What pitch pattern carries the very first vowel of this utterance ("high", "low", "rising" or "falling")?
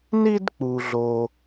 high